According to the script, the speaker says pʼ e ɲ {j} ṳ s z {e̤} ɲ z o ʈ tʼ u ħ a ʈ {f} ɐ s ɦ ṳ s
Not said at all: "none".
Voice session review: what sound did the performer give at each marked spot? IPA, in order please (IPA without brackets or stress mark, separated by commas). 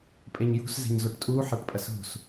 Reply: j, e̤, pʼ